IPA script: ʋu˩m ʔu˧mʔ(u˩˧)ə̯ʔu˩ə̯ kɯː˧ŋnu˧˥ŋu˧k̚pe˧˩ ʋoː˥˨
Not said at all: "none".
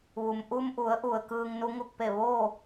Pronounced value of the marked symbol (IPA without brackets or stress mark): u˩˧